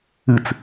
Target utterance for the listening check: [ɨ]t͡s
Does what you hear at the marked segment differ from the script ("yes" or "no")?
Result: no